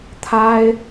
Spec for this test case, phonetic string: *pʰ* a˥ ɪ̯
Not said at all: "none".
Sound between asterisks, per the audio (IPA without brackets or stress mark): t̪ʰ